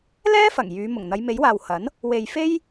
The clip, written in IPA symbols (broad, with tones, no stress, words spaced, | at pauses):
lɛː˥fɐ˨˩ŋ jyː˨˧ mʊ˨˩ŋn̪ɐ˨˧jme˨˥jwaː˨w hɐ˨˥n | we˨j fe˥j